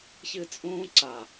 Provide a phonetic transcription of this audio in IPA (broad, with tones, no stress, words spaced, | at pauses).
çɨ˥˧t͡sʼũː˥ǀa˧˩